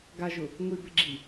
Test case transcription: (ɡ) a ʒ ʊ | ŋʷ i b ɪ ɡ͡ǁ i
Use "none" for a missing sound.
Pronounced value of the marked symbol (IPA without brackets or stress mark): ɡ